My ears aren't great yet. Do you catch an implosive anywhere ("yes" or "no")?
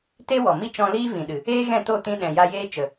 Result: yes